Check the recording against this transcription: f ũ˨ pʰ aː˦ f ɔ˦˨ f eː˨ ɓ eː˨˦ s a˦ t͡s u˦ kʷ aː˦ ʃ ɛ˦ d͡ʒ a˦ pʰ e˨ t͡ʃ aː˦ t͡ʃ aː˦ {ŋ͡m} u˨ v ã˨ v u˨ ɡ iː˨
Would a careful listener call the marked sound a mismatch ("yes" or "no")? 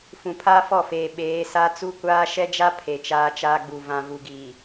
yes